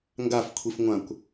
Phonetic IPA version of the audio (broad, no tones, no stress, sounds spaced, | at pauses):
ŋ ɡ a f kʷʰ i f ŋʷ ã kʷ